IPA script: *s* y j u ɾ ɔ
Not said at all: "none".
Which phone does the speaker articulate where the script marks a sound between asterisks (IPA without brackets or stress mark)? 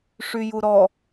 ʂ